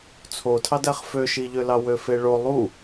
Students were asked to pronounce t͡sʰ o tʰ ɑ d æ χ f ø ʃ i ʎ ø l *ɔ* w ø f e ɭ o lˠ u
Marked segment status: incorrect: ɑ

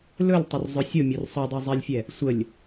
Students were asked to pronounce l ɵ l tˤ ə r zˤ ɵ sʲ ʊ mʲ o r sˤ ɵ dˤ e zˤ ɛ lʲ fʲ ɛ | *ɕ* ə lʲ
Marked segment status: incorrect: sʷ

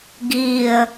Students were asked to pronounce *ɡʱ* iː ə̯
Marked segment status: incorrect: ɡ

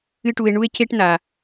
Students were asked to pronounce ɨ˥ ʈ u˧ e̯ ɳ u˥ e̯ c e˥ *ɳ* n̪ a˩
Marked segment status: incorrect: ʈ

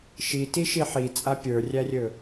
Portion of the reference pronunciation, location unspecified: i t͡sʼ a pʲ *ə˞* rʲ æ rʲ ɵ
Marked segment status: correct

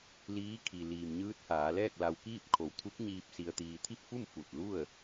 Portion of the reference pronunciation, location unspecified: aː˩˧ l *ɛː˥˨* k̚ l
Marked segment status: correct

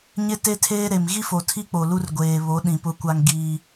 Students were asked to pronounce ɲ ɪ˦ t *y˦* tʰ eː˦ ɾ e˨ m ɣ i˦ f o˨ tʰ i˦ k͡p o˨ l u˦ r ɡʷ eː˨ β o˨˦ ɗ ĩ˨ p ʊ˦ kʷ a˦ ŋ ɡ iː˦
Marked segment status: incorrect: e˦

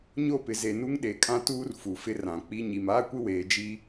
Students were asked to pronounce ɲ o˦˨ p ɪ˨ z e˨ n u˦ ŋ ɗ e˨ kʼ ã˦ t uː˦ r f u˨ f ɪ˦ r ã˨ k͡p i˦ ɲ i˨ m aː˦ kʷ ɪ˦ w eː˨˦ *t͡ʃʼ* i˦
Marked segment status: incorrect: d͡ʒ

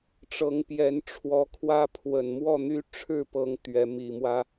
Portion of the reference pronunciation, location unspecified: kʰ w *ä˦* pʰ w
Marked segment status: correct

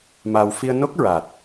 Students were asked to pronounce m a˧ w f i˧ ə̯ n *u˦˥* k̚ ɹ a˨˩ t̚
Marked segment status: incorrect: o˦˥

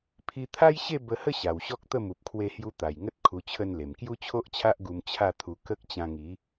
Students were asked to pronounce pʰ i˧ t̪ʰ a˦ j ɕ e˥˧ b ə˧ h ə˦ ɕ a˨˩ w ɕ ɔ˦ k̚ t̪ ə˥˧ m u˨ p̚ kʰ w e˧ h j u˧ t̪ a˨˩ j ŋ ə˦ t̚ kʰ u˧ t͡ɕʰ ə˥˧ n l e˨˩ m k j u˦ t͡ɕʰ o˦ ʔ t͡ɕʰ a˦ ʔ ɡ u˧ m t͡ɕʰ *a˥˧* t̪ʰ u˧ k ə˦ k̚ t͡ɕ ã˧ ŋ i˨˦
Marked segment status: correct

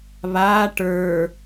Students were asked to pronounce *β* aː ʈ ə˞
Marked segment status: correct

